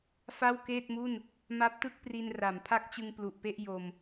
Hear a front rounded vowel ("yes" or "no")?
no